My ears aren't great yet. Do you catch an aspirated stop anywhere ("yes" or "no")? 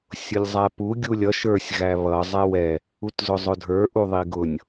no